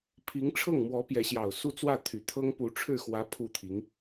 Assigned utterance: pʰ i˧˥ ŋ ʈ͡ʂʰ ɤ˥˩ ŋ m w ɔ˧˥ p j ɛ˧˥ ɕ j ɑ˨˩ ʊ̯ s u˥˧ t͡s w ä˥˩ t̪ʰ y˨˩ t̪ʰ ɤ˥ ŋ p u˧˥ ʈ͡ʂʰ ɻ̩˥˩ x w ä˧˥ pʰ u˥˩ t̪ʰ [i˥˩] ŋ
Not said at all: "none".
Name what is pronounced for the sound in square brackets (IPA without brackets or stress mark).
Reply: i˧˥